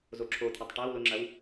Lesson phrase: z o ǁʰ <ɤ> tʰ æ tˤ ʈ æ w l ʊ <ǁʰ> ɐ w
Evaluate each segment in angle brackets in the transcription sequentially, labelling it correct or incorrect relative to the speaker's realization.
incorrect, incorrect

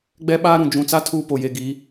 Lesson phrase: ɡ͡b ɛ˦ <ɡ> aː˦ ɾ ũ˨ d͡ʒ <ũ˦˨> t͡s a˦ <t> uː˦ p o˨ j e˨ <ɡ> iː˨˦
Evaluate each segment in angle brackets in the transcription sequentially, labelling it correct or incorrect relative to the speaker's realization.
incorrect, incorrect, incorrect, correct

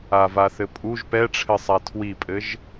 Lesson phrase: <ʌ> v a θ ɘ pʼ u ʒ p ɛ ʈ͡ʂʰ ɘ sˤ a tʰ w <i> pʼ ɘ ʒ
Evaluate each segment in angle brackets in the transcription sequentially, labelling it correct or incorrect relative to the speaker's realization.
incorrect, correct

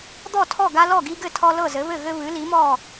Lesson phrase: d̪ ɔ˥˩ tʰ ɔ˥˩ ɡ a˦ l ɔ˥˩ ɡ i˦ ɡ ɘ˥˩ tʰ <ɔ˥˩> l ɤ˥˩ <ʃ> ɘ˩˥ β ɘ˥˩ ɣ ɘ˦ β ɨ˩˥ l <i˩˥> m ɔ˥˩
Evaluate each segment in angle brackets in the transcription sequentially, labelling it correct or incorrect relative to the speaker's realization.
incorrect, incorrect, correct

